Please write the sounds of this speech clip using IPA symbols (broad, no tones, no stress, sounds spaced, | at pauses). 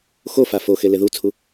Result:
x o f a f o x e l e ð u t͡sʰ u